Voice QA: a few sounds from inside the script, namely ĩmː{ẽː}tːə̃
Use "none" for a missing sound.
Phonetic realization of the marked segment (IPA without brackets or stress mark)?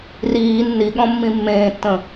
ẽː